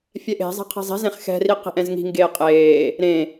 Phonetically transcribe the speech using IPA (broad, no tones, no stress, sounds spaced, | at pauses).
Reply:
fʲ ɛ ʔ e̤ zˤ e̤ qʰ e̤ zˤ i̤ z ẽ χ x ɛ̤ r i q i̤ ʔ ɛ̃ z ŋ i̤ ŋ ɡ eː qʼ eː | ɾ ẽ